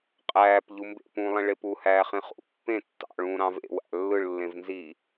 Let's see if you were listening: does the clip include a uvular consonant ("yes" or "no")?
yes